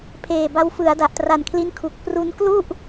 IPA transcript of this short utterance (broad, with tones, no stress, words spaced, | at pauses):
pʰeː˨˩ba˧wfɯ˩˦a̯ da˨˩ʔtra˨˩nkʰli˦˥n kʰu˨˩k̚ pru˧nklu˥˩ʔ